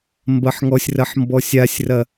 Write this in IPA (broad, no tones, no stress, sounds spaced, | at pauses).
m b ɐ ħ ŋ ɔ sʲ r ɐ ħ m b ɔ sʲ a sʲ r ɐ